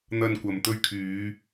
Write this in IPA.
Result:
n̪ ɐ˧ n kʷ ɐ˨ m t̪ ɵ˧ ɥ kʰ yː˨˧

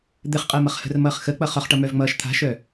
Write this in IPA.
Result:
d̪ ɘ χ qʼ əː m ʌ χ h ə̤ r m ʌː χ x ə k͡p ʌ χ ɒ χ ʈ ʌ m œ v ŋ͡m ʌː ʃ t̪ʰ a̤ ʃ œ

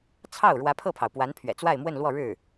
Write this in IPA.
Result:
t͡sʰ ɑ˥˩ ʊ̯ ɻ w ä˧˥ pʰ ɤ˥˩ pʰ ɑ˩ ʊ̯ p w a˧˥ n pʰ ɥ ɛ̰˨˩ t͡s w a˥˧ ɪ̯ m w ə˥˧ n l w ɔ˥˧ ɻ ɻ̩˥˩

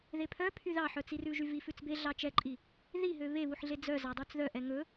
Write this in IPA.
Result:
ð e pʰ œ pʰ y ð ɑ ħ œ t͡s i r ʉ ʒ y v i f ʉ t͡s b e ɮ ɑ t͡ʃ ɛ ǃʼ i | ð i ɦ ø β e β u ħ ɮ e d͡z œ z ɑ dˤ u t͡s ð œ ʔ ɛ ŋ ɵ

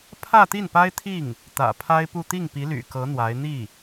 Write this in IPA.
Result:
pʰ ä˥˧ t̪ i˥˩ n p a˥ ɪ̯ t̪ʰ i˥˩ ŋ | t̪ ä̰˨˩ pʰ a˥ ɪ̯ p u˥˧ t̪ i˥˩ ŋ p i˧˥ l y̰˨˩ k ɤ˧˥ n̪ w a˧˥ ɪ̯ n̪ i˥˩

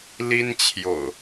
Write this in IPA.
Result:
l i˦ n t͡ɕʰ j o̰˨˩ ʊ̯

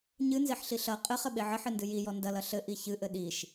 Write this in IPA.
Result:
ɲ ɨ n z e ħ ɬ i ɬ ɐ qʼ ɘ χ ɘ ɓ e ʕ ɘ ħ ɨ n d ɨ j i j ɔ n d ɐ l ɐ ɬ ɘ ʔ i ç ɨ ʔ ɘ ɗ i ʃ

